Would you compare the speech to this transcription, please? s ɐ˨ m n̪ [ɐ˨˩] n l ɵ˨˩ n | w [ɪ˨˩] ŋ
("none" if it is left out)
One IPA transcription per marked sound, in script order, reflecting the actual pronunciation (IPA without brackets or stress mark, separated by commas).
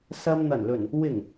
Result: ɐ˨˩, ɪ˨˩